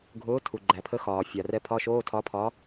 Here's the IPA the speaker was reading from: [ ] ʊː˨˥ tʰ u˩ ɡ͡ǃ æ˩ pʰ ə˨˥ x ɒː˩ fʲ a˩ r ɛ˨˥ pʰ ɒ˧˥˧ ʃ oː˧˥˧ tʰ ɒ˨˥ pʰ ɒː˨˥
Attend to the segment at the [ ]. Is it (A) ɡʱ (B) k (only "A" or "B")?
A